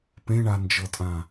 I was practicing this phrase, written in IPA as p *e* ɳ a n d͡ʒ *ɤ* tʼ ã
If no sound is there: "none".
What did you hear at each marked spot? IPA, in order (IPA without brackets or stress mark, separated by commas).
ẽ, ɤ